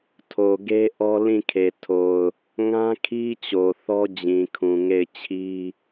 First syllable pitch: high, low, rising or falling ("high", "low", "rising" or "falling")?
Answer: low